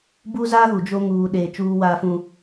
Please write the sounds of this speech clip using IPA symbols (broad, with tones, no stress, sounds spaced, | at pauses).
b u˦ z a˦ ɣ u˨ d͡ʒ o˦ ŋ uː˨ ɗ eː˨ t͡ʃ uː˦ w aː˦ f ũ˦